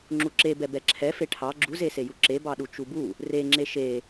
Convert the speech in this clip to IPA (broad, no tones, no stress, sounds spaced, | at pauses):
ŋ͡ǁ u ǁ e b ɛ b ɛ ǁʰ ɛ f e ʈʰ ɑ ɡ͡ǁ u z e s e j u ǁ e b ɑ ɗ u t͡ʃ u b u | r e ŋ͡ǁ e ʃ e